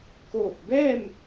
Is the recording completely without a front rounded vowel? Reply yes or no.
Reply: yes